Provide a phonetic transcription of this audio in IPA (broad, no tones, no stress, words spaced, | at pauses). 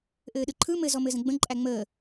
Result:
ʔɘːɗɯǃʰɯ mɘ zɔmɘzə̃ɡ͡bə̃ ǃʼæŋ͡məː